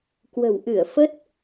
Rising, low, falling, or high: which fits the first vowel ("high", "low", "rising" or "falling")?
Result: low